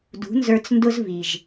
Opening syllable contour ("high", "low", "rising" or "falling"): rising